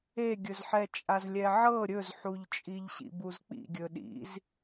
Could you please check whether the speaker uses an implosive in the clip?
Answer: yes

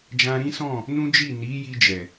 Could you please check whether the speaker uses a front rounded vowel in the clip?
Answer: no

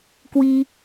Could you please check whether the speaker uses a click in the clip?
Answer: no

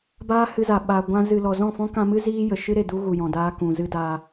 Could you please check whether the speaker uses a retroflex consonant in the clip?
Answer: no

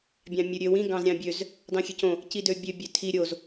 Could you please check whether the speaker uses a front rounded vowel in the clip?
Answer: yes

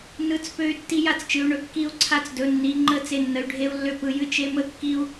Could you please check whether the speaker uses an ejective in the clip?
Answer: no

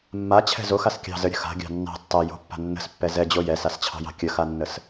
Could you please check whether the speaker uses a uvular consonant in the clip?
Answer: no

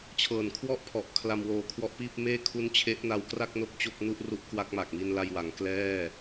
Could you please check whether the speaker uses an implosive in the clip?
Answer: no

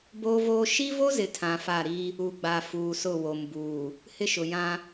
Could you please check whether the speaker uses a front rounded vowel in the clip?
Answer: no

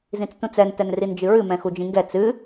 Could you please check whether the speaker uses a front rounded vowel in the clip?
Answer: no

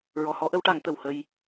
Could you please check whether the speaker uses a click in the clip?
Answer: no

